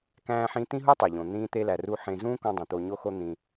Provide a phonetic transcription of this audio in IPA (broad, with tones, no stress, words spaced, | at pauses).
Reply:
kæ̃ː˧ħĩ˧ t̪ĩ˥ɦu˥tˤe˩ ʎõ˩ n̪ĩː˧t̪e˧læ˩ ruː˧ ħẽ˧ zũː˥kõ˧dˤẽ˩ t̪o˧ɲo˥xo˥ n̪ĩ˧